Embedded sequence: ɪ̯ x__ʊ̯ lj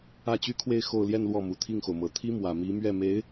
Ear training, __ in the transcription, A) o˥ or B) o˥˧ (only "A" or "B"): B